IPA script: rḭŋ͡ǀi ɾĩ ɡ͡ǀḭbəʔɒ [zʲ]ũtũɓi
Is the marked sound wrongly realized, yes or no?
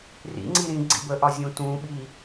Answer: no